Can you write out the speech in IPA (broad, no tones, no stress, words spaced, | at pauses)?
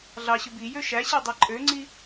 ɮɑɕɯ bijø ʃæɕi dˤæǃʼøŋ͡ǀi